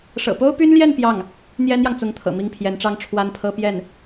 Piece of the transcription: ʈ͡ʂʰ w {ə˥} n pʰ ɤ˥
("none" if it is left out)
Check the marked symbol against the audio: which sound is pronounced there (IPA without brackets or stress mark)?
a˥